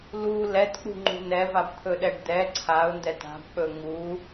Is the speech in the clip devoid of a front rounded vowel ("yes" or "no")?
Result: yes